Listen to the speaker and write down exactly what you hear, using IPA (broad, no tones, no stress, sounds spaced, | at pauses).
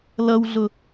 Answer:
l ʌ w ɮ ʊ